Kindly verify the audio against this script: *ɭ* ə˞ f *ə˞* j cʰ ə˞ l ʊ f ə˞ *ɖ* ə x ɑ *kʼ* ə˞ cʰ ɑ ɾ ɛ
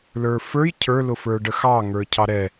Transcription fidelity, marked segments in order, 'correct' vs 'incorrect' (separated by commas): incorrect, correct, correct, incorrect